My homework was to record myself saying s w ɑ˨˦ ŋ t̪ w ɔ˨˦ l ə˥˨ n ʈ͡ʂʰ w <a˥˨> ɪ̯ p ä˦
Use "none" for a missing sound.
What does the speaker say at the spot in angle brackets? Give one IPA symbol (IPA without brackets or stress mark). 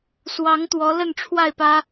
a˥˨